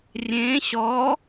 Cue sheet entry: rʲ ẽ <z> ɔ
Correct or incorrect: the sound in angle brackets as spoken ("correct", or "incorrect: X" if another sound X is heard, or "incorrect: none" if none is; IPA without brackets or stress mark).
incorrect: ɕ